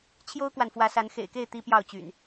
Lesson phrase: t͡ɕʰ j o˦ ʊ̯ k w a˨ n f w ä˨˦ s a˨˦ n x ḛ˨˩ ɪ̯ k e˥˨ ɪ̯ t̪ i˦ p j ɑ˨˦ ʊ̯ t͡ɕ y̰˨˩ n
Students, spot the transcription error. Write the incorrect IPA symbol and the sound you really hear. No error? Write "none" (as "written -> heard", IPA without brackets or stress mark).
ɑ˨˦ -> ɑ˥˨